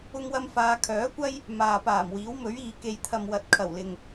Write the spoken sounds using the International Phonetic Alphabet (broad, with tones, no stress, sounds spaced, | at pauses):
ʊ˧ ŋ w ɐ˧ m f aː˧ kʰ œː˨˥ kʷ ɐ˥ j | m aː˨ p aː˨˩ m w iː˨˥ w m ɵ˨˥ ɥ iː˨ k e˨ j t̪ʰ ɐ˨ m w ɐ˨˥ t̚ kʰ ɐ˨˩ w l ɪ˨ ŋ